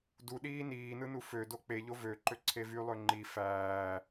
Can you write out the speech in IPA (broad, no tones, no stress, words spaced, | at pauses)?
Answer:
duɗiː niːnɯnu fødo k͡peʎo vøǃøǀʰe vylˠø ŋ͡ǃi fæː